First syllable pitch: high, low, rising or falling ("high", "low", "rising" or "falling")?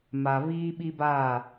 low